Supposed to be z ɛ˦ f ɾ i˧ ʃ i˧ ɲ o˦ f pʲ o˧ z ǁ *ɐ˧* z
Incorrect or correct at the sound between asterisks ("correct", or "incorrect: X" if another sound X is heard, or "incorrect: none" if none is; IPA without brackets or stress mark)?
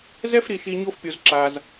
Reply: incorrect: a˧